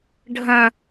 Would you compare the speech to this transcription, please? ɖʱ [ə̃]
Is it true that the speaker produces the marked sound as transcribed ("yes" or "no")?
yes